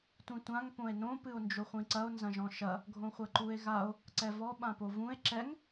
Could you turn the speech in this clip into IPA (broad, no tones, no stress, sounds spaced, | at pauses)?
tʷ ĩ tʷ ã ŋ p õ e̯ n õ p ɨ o̯ n d͡ʒ o χʷ ĩ ǀ ɐ o̯ n z ɐ̃ ʒ ɔ̃ ʃ ɐ | ɡʱ õ χʷ ɐ ǃ u e̯ ɣ a o̯ | ǀ ɛ v ɔ ɓ ã p o v ũ e̯ ǁ ɛ ŋ